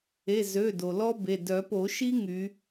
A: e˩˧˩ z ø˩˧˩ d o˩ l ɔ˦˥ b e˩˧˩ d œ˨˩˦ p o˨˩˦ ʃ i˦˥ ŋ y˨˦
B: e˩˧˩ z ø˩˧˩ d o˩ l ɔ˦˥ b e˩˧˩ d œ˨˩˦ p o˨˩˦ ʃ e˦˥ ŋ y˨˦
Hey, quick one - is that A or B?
A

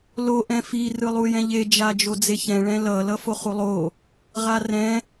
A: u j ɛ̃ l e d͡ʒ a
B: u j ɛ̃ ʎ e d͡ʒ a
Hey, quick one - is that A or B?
B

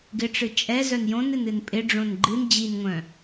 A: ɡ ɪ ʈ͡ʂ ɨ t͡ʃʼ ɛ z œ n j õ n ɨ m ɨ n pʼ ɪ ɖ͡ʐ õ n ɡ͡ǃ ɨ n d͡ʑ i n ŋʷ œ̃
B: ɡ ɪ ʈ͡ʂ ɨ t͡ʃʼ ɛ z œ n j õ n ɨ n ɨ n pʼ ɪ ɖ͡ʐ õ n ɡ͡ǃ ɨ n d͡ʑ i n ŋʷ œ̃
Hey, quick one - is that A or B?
B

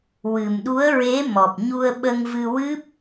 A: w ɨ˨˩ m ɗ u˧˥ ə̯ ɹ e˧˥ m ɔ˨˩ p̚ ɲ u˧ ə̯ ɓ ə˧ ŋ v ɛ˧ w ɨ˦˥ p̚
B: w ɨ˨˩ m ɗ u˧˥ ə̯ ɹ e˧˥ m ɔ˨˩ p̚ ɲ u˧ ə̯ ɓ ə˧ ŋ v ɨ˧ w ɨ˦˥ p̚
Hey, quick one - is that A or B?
B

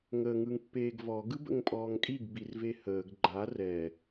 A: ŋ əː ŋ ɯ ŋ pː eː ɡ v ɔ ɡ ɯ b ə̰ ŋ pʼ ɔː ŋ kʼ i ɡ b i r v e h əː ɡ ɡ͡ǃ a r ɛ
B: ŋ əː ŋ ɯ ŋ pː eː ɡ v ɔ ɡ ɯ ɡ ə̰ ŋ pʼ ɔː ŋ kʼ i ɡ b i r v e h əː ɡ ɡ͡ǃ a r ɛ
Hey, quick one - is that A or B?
A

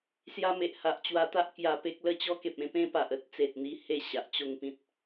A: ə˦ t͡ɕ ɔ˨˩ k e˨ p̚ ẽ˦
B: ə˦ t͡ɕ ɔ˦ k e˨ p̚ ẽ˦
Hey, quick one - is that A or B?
B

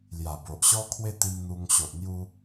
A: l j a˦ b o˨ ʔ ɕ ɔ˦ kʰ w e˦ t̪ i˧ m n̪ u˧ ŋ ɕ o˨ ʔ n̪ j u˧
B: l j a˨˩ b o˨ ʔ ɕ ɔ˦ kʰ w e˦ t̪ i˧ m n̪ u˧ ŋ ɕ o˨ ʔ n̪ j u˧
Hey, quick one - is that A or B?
B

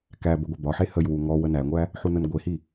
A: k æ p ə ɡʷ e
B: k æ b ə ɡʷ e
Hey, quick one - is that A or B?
B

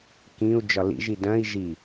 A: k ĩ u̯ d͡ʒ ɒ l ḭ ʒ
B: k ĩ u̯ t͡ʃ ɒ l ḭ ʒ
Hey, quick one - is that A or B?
A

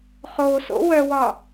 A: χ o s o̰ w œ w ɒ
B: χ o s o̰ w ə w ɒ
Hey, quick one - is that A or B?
A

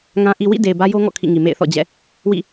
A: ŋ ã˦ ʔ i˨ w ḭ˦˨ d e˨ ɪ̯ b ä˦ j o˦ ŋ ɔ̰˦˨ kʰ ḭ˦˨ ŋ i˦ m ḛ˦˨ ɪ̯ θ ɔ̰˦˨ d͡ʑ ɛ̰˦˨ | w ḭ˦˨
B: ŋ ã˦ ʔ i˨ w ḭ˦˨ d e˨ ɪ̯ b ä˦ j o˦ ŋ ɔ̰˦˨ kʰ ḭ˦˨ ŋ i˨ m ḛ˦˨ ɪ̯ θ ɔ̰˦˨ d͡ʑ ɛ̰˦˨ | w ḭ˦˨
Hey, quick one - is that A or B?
B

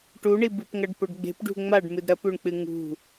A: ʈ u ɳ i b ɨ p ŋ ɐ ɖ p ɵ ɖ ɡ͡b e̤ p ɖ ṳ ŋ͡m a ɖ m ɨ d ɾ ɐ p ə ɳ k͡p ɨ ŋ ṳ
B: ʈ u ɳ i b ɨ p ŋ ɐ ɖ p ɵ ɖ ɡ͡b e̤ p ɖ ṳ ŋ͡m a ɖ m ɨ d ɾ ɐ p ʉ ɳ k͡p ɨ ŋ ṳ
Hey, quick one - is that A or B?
B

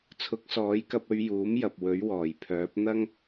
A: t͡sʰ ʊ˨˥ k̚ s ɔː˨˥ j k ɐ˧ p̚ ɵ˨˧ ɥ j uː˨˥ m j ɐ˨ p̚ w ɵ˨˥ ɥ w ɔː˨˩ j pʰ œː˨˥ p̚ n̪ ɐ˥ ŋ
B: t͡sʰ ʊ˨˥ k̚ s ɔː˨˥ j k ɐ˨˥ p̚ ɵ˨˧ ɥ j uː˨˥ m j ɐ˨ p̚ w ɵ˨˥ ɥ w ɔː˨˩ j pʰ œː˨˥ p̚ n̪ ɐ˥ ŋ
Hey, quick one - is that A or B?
A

